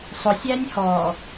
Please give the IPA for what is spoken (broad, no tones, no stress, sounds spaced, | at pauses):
sˤ ʊ sʲ æ nʲ h ɔ